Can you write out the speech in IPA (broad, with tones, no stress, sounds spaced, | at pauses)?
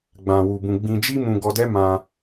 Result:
ɡ͡b ã˧ w u˧ b ũ˧ ɡ͡b ĩ˧ d͡ʒ i˦ m ũ˧ ɡ ɔ˧ d ɛ˦ m ã˧